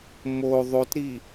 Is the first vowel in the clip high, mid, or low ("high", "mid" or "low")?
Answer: mid